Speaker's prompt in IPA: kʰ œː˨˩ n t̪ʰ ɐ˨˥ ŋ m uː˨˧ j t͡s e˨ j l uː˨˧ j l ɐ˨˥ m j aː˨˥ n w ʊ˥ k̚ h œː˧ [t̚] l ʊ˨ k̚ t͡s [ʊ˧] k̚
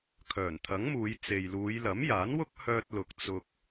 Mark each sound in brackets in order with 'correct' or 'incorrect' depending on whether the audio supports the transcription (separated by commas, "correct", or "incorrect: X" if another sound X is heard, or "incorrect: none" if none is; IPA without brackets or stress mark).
correct, correct